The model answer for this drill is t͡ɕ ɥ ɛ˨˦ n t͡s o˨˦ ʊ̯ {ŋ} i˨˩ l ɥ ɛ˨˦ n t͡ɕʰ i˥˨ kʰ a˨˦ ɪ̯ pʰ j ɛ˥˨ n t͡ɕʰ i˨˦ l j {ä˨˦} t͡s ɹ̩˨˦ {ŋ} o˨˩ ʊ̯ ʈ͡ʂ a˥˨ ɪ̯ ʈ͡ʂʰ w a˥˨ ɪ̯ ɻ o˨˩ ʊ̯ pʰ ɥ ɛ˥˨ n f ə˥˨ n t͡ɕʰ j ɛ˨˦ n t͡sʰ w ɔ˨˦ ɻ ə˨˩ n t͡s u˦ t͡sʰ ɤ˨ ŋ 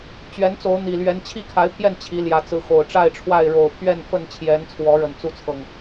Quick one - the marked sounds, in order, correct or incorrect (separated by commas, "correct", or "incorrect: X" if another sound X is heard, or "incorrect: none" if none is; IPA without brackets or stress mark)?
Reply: incorrect: n̪, correct, incorrect: x